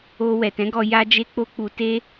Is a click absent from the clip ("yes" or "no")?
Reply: yes